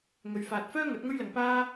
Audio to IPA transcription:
ŋ ɵ˨ ɥ f aː˨ t̚ f œː˥ ŋ ɐ˨˥ t̚ ŋ ɵ˥ ɥ l ɐ˨ ŋ p aː˥

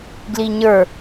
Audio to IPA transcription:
ɡ l i ɲ ə˞

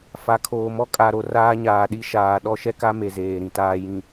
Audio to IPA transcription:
f a˨ kʰ oː˨ m ɔ˦ kʼ a˨ ɾ o˨ r aː˦ ɲ aː˨ ɗ i˦ ʃ aː˨ ɗ ɔ˦ ʃ ɛ˦ k a˦ m e˨ z eː˨ ɾ ĩ˨ t aː˨ j ĩ˨

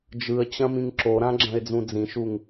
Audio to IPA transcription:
d͡ʒ ɯ ə̯ t͡ɕ ɐ̃ m ĩ ŋ ǁ o ɾ ã ɡ͡ǁ ɐ̃ ɪ̯ d͡z ũ d͡z ĩ ʃ u ŋ

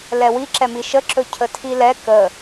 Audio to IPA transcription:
l ɛ w i ǁ ɛ m i ʃ ə ǁ ɵ cʰ ə tʰ i l ɛ k ə

